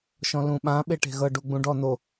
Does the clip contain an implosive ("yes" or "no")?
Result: yes